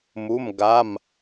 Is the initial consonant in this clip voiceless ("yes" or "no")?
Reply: no